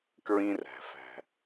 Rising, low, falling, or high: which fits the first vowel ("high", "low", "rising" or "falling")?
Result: high